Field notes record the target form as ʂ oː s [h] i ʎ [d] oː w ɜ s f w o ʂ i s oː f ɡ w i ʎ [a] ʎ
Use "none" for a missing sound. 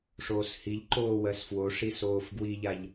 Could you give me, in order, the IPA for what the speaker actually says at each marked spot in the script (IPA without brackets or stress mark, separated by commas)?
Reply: h, ǃ, a